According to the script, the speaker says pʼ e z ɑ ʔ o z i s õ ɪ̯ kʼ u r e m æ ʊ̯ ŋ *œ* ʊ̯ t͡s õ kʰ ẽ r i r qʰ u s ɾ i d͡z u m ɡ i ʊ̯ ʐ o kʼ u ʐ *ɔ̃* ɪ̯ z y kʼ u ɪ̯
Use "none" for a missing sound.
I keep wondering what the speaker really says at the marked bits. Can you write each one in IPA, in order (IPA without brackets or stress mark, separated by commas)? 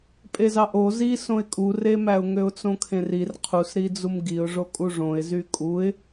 ø, õ